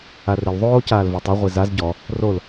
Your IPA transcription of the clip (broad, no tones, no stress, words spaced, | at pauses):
arɪl ðˤoː caːlvotˤo ʁʷizaz ɟɔ | rol